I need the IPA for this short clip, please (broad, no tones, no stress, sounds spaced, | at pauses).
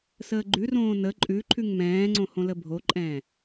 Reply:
s əː ɡ͡ǃ ʉ r õː n ə ǃʼ ʉ ǃʰ ʉ ŋ m ɛ̃ː ŋ͡ǀ õ h õ l ə bʱ o ǃʼ ɛ̃ː